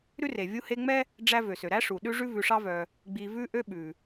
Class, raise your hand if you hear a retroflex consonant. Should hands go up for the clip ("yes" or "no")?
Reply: yes